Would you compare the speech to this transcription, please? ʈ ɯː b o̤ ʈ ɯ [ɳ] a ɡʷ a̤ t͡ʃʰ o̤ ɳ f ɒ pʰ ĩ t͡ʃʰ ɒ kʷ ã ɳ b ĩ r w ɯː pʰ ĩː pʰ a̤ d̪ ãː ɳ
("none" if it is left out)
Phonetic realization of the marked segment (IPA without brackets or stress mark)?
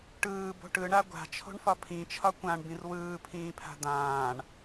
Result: ɳ